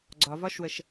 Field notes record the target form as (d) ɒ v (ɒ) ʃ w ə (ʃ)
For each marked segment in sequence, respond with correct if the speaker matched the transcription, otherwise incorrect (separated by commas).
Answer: incorrect, correct, correct